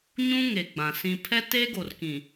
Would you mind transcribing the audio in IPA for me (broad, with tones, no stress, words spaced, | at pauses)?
ɲũ˦ ŋe˨ɡ͡bã˨ sĩ˨ pʰɛ˦te˦ɡo˨rkĩ˨